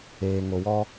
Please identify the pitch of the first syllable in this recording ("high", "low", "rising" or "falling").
low